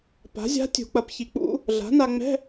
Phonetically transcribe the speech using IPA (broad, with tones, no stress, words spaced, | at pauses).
pa̤˩˥zʲa̤˧˥ tʲṳ˨˩˦k͡pɐ˩˥pçi˩˥k͡pṵ˩˥ | ɮa̤˩˥na˧ŋ͡mɛ̤˧˥˧